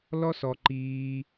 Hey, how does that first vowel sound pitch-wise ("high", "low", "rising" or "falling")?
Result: high